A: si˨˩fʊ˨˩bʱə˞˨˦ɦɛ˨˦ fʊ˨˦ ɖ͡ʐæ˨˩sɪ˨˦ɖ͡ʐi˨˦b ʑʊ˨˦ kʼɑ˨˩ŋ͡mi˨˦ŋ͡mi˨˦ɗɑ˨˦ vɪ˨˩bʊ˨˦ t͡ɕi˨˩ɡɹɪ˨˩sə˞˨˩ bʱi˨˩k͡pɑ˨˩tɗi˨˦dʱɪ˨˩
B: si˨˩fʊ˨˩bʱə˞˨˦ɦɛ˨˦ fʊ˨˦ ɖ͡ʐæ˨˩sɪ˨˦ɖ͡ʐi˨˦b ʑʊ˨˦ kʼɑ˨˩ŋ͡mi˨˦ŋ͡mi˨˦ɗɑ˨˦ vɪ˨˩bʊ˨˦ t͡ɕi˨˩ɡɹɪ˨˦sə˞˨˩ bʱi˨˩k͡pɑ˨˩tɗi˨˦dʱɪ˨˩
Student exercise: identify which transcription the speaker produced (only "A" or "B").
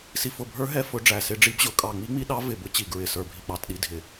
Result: A